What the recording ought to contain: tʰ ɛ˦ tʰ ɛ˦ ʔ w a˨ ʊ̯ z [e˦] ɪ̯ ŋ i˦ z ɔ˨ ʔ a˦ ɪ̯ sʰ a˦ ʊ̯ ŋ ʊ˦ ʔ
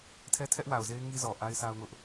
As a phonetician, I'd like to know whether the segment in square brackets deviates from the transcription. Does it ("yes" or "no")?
no